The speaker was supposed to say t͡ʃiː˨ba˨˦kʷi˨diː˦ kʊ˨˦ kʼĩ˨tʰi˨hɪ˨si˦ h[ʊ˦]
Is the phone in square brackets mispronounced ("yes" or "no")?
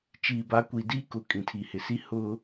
no